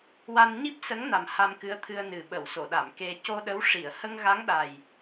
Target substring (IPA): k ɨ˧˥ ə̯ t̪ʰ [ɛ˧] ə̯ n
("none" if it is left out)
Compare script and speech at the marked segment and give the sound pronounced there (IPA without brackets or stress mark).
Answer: ɨ˧